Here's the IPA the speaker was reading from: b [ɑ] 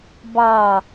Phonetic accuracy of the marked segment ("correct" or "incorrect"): correct